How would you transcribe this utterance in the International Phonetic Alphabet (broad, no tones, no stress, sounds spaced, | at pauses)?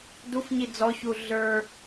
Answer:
d u f ɲ i d͡z ɔ ç u ɮ ə˞